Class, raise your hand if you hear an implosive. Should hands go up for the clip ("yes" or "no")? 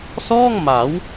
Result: no